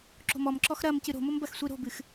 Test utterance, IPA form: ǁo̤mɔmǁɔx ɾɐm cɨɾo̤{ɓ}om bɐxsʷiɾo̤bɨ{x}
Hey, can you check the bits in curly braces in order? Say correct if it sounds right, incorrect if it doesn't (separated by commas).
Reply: incorrect, correct